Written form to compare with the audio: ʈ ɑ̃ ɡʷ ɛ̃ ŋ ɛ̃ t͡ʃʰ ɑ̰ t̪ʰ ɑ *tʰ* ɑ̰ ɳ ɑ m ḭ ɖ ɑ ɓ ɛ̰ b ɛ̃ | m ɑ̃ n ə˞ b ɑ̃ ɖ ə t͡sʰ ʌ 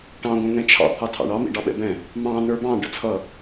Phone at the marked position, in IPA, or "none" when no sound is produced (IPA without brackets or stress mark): tʰ